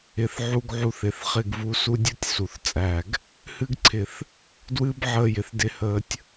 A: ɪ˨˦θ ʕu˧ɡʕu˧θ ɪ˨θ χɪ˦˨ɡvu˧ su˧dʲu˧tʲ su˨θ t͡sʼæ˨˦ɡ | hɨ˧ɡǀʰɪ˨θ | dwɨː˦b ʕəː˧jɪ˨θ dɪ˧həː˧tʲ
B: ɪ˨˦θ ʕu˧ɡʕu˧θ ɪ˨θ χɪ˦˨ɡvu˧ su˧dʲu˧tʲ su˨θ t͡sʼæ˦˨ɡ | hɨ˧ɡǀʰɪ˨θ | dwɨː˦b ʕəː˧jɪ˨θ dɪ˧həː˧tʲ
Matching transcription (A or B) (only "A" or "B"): B